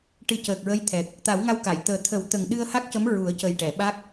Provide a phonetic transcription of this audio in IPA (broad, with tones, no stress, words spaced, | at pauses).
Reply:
ʈɨ˨˩˦cəː˨˩k̚ɹə˧˥j t̪ʰɛ˨˩k̚ | t̪a˨˩˦wŋa˧wka˨˩˨j t̪əː˨˩ t̪ʰə˨˩˦wt̪ə˨˩ŋ ɗɨ˧ə̯ha˦˥k̚cə˧˥m ɹu˨˩˦ə̯cə˨˩jʈɛ˨˩˨ ɓa˦˥k̚